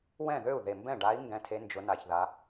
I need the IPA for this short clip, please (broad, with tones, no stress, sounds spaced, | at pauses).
w ɛ̃˥˩ ð ø˥˩ u̯ ð e˨˩ m b ɛ̃˥˩ ɖ a˧˥ i̯ ŋ ɡ ɛ̃˧˥ tʰ e˧˥ n d͡ʒ ʊ˩˧ n a˨˩ ç ð a˩˧